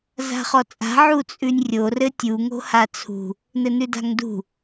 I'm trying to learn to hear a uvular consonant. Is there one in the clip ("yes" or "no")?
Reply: yes